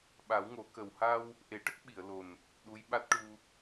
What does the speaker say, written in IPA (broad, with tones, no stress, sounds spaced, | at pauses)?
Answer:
ɓ a˨˩˦ w ŋ o˨˩˦ k ə˨˩ w h a˧ w | ʔ e˨˩˦ ʈ ə˦˥ k̚ ɓ i˨˩˨ ə̯ l o˨˩ n | ɗ u˧˥ j ɓ a˦˥ t̚ ʈ u˧